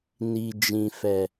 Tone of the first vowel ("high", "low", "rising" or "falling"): low